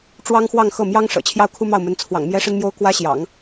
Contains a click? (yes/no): no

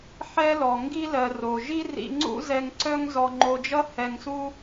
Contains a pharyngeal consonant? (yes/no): yes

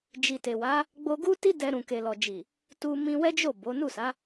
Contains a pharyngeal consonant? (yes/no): no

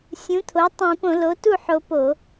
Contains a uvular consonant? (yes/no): no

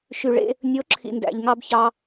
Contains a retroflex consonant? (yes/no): yes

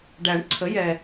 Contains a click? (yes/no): yes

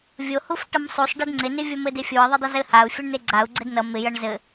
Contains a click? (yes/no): yes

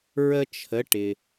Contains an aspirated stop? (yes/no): yes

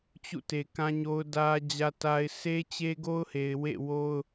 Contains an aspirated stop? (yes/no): no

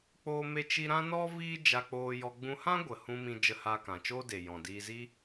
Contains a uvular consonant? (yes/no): no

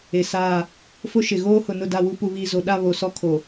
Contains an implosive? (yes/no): yes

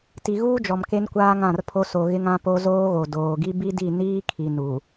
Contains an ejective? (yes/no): no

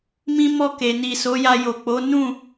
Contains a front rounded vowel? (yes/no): no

